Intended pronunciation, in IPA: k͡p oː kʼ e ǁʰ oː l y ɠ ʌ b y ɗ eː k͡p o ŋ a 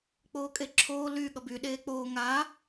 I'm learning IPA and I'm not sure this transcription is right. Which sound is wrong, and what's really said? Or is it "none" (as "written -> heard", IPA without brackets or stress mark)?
o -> oː